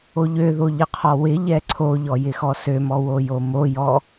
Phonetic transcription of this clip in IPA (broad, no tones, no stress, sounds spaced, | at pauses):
o ʎ ø ð o ʎ ɪ qʰ ɔ w ɪ ʎ ɛ ǀʰ o ʎ ɔ j ɪ x ɔ s ø m ɔ w o j o m o j ɔ